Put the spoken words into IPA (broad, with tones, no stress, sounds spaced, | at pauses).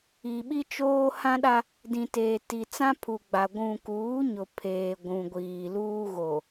i˨ ɓ i˦ t͡ʃ oː˦ h ã˦ ɗ a˦ | d ĩ˨ t eː˨ t i˨ t͡s ã˦ pʰ u˨ ɡ͡b a˨ ɡʷ ũ˨ k uː˨˦ ɲ ʊ˨ pʰ eː˨ ɡʷ ũ˨ ɡʷ iː˨ l uː˦ ɣ o˨